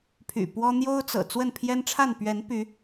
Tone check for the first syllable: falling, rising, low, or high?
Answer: low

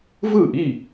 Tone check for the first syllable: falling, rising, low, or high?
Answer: falling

